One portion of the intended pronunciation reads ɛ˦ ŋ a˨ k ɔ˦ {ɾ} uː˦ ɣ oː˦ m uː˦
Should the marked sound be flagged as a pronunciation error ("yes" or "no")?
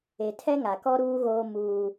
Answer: no